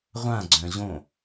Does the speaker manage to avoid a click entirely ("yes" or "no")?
no